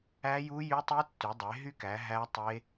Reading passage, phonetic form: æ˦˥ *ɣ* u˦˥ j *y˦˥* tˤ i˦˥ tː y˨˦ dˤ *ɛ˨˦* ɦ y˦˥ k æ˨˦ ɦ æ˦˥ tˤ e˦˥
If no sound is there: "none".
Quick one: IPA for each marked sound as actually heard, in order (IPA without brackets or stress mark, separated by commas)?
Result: j, y˦˥, e˨˦